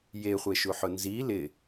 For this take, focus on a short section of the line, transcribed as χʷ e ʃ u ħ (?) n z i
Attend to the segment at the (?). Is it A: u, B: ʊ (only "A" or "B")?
B